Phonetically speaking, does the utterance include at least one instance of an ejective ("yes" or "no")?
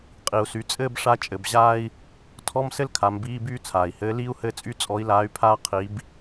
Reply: yes